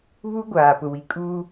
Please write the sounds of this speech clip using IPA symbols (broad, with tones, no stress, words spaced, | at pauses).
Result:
βu˦ɡʷaː˨ pʊ˨wi˨kʼuː˦